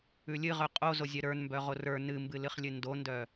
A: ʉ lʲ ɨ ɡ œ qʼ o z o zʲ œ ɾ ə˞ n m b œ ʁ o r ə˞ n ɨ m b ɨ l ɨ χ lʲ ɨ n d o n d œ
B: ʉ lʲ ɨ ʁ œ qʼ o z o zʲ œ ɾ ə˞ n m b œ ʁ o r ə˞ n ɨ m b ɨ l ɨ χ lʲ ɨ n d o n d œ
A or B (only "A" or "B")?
B